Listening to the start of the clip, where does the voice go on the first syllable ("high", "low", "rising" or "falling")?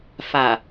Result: low